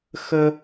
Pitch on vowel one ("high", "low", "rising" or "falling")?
high